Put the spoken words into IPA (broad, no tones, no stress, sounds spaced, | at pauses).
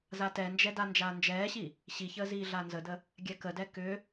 z a t ɛ n d͡ʒ ɛ d a n d͡ʒ aː n d͡ʒ ɛː ɕ i | ɕ i ç əː z iː ɮ a n z ə d ə | ɡʲ ɛ k ə d ɛ k ʏ